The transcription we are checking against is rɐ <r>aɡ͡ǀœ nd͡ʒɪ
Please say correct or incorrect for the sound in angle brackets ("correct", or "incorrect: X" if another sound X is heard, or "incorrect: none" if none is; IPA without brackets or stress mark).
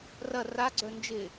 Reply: correct